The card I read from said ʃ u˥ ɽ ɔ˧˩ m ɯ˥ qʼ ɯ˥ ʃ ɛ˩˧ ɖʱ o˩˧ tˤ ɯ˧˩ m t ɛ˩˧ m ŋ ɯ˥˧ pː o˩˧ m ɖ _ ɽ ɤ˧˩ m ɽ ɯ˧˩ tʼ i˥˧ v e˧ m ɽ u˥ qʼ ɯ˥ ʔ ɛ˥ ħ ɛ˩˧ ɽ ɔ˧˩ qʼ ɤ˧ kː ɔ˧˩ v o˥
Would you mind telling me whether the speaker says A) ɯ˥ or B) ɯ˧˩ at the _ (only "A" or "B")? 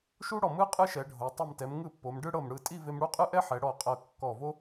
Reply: A